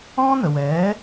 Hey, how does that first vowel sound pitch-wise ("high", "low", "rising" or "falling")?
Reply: high